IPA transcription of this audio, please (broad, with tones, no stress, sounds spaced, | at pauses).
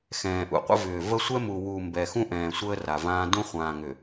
x ɛ̃ː˨ ʔ ṵ˨ qʷ ə̰˦ v ʏː˨ v ə˦ sʷ ɛ˦ m u˨ w u˨ m b ɛ˨ x ũ˦ ʔ ɛ̃ː˨ sʷ əː˦ r a˨ v ãː˦ d ũ˦ χʷ ãː˨ ŋ ʏ˨